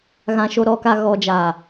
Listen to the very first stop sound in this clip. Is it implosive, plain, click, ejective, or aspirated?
plain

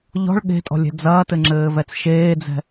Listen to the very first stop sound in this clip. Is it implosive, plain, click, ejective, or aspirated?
implosive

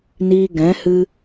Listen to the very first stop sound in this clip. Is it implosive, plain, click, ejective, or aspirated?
plain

